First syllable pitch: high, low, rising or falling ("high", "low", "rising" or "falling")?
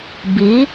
rising